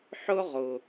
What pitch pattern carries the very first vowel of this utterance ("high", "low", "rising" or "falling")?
high